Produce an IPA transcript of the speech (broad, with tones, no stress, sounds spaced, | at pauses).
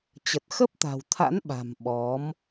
t͡ɕ ə˨˩ t̚ x ə˦˥ p̚ t̪ a̤˨˩ w t̪ʰ a̰˧˥ n ɓ a̤˨˩ m ɓ ɔ˨˦ m